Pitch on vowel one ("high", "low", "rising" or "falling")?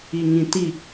low